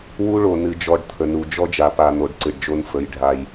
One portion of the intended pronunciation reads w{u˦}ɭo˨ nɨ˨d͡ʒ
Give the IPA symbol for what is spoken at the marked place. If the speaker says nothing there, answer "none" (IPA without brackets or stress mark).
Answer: u˦